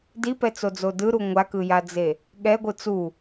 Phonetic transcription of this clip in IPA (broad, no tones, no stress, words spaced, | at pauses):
dipɛt͡sod͡zo dɯɾu ŋʷakɯjad͡ze | ɠɛɡʷɯ t͡su